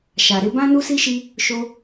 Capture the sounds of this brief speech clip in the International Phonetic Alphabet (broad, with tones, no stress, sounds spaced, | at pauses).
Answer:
ʃ a˧ ɾ e˦ b ã˦ n u˦ s i˦ ʃ i˦ | ʃ o˦